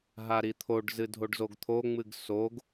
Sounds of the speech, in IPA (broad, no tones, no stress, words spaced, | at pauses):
ɦaɾit̪ʰoɖzɨ dʱoɖzoɡt̪ʰoŋ͡mɨɡ soɡ